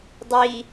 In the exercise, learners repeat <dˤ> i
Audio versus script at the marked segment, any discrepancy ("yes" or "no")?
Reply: no